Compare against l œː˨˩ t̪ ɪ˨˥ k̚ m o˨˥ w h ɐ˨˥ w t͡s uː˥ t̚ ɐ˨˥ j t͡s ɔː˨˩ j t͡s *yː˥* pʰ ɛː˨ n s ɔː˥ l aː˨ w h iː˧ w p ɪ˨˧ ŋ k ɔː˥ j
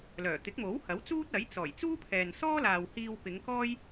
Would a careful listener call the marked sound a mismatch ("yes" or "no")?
yes